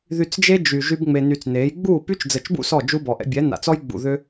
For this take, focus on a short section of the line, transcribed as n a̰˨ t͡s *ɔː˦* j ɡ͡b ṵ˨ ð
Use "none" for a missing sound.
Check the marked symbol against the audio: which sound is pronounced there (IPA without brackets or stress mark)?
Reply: ɔ˦